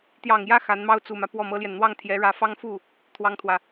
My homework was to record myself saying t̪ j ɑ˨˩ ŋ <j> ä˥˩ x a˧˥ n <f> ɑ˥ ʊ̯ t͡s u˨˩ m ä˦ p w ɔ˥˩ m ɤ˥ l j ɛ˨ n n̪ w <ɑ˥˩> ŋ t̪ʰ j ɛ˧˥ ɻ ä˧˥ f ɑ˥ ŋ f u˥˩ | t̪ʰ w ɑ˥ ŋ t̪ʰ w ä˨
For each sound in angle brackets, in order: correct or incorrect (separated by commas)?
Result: correct, incorrect, correct